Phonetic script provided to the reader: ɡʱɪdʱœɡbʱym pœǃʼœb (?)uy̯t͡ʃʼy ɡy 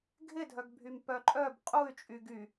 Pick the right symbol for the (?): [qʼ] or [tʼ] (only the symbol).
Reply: qʼ